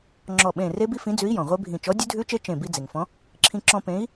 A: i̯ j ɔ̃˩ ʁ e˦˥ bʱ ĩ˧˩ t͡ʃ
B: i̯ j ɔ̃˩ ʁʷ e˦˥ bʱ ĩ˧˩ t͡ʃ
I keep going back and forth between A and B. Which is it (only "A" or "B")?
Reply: B